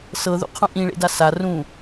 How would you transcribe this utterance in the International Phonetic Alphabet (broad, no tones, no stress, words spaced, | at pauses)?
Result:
sɤðṵqʰũ ʔĩɭḛda sa rũ